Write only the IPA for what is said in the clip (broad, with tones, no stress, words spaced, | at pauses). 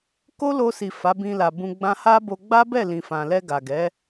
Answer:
ko˦lo˧si˨ fa˨˦bĩ˧la˨bũ˧ ɡ͡bã˧ha˦bo˧ ɡ͡ba˦bɛ˦˨ lĩ˨fã˨lɛ˧ ɡa˨ɡɛ˨˦